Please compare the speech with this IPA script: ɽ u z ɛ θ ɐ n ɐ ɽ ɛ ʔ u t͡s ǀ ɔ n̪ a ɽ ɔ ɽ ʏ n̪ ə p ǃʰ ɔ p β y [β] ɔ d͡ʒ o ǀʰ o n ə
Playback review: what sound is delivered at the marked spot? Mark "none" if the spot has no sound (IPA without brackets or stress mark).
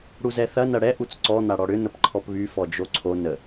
f